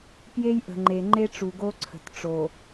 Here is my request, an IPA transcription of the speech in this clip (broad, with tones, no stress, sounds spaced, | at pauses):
p j e˦ j ʔ ə̤˨ ŋ͡ǃ e˨ ŋ͡ǃ e˦ ʈ͡ʂ u˨ ɡ o˦ ǀʰ ə̤˨ t ʈ͡ʂ o˨